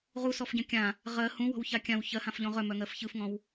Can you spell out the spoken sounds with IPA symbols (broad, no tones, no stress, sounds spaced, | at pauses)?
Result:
ʁ u s ɔ f ɟ œ̃ kʲ ã | ʁ ɜ h ũ w ɔ̤ w ç a kʲ ã w ç ɜ h ã f ʎ ɔ̃ ʁ œ m œ ŋ ɜ f ç ɯ f ŋ ɔ̃ w